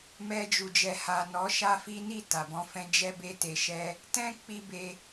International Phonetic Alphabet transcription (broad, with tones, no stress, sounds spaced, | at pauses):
m ɛ˧ d͡ʒ u˨ d͡ʒ ɛ˨ h a˨ n ɔ˨˦ ʃ a˦ f i˦ n i˦˨ t a˨ b ɔ̃˧ f ɛ̃˦ d͡ʒ ɛ˦ b e˦ t e˧ ʃ ɛ˧ | t ɛ̃˦ k͡p i˧ b e˧